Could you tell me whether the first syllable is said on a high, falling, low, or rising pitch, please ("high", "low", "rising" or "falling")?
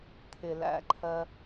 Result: low